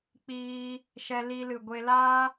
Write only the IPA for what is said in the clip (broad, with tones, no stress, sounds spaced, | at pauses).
k͡p iː˧ | ʃ ɛ˧ l i˧ l ɨ˨ ɡʷ e˧ l a˦